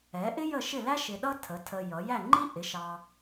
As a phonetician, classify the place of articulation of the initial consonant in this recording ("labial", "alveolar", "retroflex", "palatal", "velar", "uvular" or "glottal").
glottal